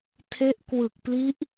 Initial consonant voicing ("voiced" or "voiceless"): voiceless